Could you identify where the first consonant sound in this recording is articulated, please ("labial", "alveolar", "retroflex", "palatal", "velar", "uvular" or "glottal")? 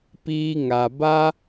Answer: labial